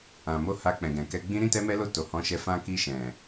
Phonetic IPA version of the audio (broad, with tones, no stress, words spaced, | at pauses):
ã˨mo˧ ha˧ k͡pɛ̃˨ɡɛ̃˨kɛ˧ɡ͡bĩ˦ ɾĩ˦˨tɛ˧mɛ˧lo˧ to˨hɔ̃˨˦ʃɛ˧ fã˧ki˧ʃɛ̃˨